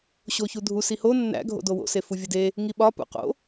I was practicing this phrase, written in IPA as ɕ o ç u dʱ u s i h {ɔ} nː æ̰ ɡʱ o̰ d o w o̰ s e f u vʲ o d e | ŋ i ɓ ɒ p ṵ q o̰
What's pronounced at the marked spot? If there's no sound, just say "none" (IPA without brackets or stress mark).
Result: o